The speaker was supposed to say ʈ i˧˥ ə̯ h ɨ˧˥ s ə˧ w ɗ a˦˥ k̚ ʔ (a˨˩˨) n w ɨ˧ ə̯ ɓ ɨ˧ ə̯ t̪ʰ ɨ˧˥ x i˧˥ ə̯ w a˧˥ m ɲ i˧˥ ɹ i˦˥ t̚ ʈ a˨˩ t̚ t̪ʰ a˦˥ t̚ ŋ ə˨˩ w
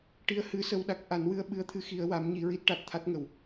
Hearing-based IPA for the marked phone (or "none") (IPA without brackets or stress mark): a˨˩˦